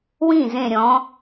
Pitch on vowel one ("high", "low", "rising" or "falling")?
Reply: falling